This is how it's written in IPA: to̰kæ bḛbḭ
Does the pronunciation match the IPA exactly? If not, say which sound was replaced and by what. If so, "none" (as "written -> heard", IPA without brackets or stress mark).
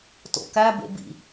none